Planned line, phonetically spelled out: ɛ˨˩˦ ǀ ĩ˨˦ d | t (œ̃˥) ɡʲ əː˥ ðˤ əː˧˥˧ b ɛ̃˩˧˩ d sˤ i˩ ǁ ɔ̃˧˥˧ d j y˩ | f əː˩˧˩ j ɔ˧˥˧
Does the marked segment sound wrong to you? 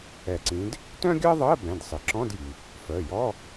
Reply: no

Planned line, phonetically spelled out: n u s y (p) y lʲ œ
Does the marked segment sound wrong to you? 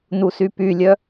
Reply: no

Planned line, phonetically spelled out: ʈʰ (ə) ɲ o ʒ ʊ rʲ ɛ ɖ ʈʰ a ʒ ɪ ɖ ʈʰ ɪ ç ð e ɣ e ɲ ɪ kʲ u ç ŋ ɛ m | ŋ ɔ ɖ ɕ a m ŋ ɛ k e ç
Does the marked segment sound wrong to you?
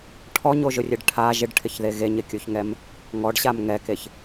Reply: yes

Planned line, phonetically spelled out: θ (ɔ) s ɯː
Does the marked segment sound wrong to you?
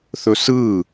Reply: yes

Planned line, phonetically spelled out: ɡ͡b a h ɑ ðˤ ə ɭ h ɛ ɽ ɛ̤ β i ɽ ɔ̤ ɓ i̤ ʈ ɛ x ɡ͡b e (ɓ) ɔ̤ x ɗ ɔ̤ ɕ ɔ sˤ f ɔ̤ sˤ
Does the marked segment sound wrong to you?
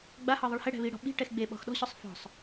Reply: no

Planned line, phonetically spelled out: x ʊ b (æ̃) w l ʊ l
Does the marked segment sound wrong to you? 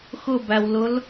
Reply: yes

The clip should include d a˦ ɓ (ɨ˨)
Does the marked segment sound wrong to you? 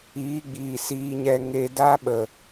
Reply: yes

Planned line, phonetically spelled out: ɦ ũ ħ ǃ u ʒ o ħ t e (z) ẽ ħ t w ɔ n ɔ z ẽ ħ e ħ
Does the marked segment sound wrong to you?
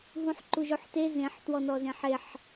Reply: no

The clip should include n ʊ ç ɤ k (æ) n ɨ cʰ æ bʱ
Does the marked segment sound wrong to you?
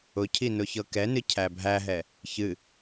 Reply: yes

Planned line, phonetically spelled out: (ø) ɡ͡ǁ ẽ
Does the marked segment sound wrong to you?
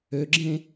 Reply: no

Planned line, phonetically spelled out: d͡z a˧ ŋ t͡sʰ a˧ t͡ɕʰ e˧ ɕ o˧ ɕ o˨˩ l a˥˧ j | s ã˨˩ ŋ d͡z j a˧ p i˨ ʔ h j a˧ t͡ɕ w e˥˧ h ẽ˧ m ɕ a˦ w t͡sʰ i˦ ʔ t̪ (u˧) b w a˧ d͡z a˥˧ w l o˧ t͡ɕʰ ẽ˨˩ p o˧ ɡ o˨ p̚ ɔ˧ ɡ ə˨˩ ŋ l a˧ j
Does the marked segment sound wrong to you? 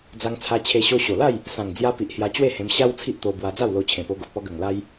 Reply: yes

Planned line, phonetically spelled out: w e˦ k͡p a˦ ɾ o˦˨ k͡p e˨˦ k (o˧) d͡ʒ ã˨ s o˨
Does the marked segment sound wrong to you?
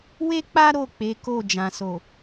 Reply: yes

